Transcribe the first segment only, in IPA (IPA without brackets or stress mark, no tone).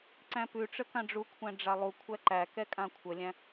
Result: ǀ